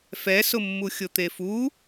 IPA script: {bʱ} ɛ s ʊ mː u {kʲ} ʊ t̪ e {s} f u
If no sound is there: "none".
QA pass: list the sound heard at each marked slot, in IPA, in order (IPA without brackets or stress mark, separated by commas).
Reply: f, xʲ, none